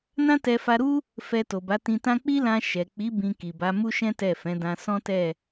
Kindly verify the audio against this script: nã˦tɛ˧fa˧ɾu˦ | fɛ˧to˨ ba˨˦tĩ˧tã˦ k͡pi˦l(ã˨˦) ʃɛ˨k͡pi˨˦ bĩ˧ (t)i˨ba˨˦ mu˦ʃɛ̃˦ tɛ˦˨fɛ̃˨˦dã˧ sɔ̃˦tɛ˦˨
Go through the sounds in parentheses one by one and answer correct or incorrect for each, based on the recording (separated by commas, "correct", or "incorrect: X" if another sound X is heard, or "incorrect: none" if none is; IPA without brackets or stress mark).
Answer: incorrect: ã˧, incorrect: k